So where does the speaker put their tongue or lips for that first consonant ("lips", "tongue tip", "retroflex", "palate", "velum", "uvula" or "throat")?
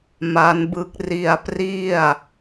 lips